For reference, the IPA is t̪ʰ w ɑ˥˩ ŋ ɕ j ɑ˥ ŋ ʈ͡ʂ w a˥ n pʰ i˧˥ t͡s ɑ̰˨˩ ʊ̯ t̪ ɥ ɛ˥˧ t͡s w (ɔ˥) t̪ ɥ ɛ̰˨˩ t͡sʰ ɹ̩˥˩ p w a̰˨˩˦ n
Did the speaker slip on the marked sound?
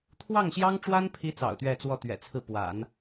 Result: yes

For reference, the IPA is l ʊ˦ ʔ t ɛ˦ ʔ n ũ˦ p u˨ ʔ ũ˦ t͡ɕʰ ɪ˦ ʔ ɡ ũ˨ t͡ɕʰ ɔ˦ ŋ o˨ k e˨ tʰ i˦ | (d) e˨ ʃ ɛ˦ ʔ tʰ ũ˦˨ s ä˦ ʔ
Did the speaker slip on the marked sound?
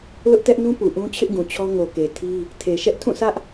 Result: yes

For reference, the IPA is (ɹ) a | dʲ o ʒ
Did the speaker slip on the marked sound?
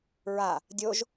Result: no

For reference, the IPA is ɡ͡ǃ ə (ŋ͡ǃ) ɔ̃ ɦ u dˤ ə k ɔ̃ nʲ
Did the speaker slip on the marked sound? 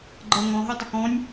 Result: yes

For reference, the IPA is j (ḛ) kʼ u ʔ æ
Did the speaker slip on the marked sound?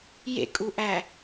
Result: no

